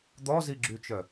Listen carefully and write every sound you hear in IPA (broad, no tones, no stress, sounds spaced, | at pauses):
d̪ ɔ z i ɡ͡ǁ y t͡ʃ œ